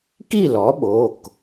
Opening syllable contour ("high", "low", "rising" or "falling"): falling